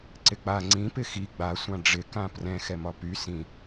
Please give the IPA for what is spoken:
ǀɪk͡pa ŋ͡ǀĩ pɪxi ɡ͡ba sʷãɖ͡ʐɪ kãprɛ̃ xɛmɒpy sĩ

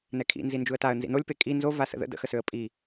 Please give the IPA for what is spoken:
nɛkʰḭnzi nd͡ʒuə̯taə̯ nzḭnolʲpe kʼi nzo vasə̰ðə̰ də̰xəsøə̯ pʼi

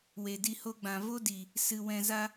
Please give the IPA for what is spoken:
we˨di˧ho˦ɡ͡bã˧ vo˦di˨ | sɨ˨ wɛ̃˧za˦

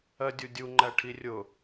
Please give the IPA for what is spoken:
ɜdʲudʲuŋ͡ǃæ ʈʰirʲʊ

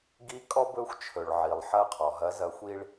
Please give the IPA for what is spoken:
ɡi˨˥ kʼɔ˦bɵ˨˥xʷt͡ʃʰɵ˩ɭ ʕi˩lˠħɐ˨˥ qʰɔ˩ɦɐ˨˥zɐ˨˥xʷi˦ɭ

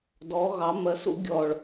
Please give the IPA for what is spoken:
dɔ˩˧ɣɑ˩˧ mɜ˩˧s ṵ˩˧ ɡʲɔ˨˩ɭ

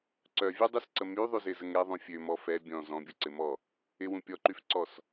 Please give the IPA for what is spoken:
ǀœvʲødˤysǀə myðˤyzɪzəŋ ɾɛðˤũ fʲømɔ fɛ bʲɔ̃ zɔ̃bʲʊǀɪmɔ | ɪwũ pʲɔǃyfǀɔs

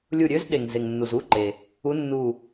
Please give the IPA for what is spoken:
lʲu˧˩ɾʲø˧˥zɗe˩ŋ ze˩ŋnːu˩zu˩˧˩ǃe˩ | u˧˥nːu˧˩

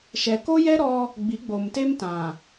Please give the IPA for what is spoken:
ʃɛ˨ko˦jɛ˦ ɾɔ˦ | ɡ͡bi˨˦ɡ͡bo˨mte˦m tã˨

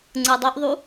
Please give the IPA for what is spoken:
ŋ͡ǀɯdˤoʔðˤu

